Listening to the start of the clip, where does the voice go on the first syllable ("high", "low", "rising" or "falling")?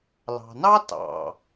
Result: low